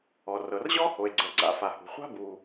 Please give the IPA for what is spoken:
ɔ˩rɤ˩rʑɔ˥ho˩e̯ ɡ͡ǀɤ˩ɡ͡ǀa̰˩ fa˩ hṳ˩χʷa̤˥ bu˩

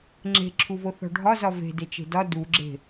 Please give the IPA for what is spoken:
ŋ͡ǁe̤ǁʰuvo θɔ̤ɖʱɒzɒ ve̤ det͡ʃe̤dɒ duɡ͡ǁe̤

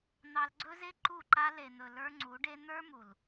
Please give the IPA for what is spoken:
n̪ɑ˧lɡ͡ǀɵ˦ze˦ ǃu˦˨ǃa˦ le˨n̪ɵ˨ lə˞˦ŋ͡ǀu˨˦ɖe˦ n̪ə˞˦mu˨l

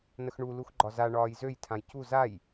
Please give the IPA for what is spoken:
nəxɳu luxɡ͡ǃɒza ɳɒːjzøj tʰãjcu zaj

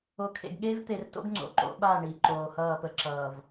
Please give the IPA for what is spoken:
o˨kʰḛ˨ɡɠeː˦v t̪e˨rto̰˦ɡŋ͡ǀo̰˨ ǃo̰˦ɓa˦˨ ɳi˨ ǃoː˨hʌː˦˨pə˦ ǁʌː˨v

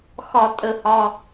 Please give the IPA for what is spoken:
xɒ˧˩˧tʼə˧˩˧hɒ˩˧˩

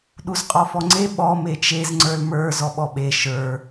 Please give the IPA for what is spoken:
ɗuzqʼɔfɔŋ͡ǀe ɓɔ met͡ʃez ŋ͡ǀə˞lmə˞ zɔɓɔɓe ʃə˞

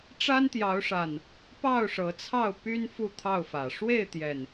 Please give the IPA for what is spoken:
ʈ͡ʂa˦nt̪jɑ˨˦ʊ̯ʂa˨˩n | pɑ˥˨ʊ̯ʂɤ˨˦t͡sʰɑ˥˨ʊ̯ py˦n fu˥˨t̪ʰɑ˥˨ʊ̯fä˨˩ ʂwe˥˨ɪ̯t̪jɛ˨˩n

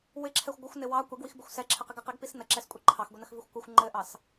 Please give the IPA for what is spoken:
wɪǁʰɛxʷ ɡʷɪxʷnɪ wɑ kʷɛɡwixbɪxʷ sɛǁʰɘqiɡ ɘqiɡpis nəǁɛskʷʼi ǃʰɑxɡʷinəxvixʷ kʷɪxʷ ŋ͡ǃɘʔɑs

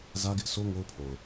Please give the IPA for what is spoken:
zä˦ɡɪ˦ʔsʰo˦ ŋo˦ʊ̯pʰo˨ʊ̯

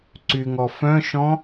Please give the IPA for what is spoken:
ǀyŋɔ fœ̃ʃɔ̃

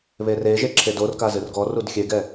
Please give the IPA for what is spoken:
βereʒe ǁʰedorka zɨrɡɔrud xʲeɡɛ

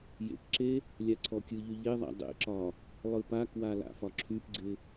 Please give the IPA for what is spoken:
jḛkǁe | lʲaǀʰɔkʲɯʎy ʎeðˤa̰ dˤḛǁɒ | lˠɯpakwa la̰fɒǁʰypɡ͡ǀɪ

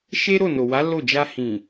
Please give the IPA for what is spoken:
ʃe˦ ɾo˦˨no˨wa˨˦ lo˦˨ d͡ʒa˧hĩ˨

